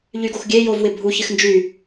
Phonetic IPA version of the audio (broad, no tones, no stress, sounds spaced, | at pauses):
ʎ y ɡ o x ɡʲ e j o v w ɪ bʱ u ç ɪ x n d͡ʒ y